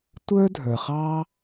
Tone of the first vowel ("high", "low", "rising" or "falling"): high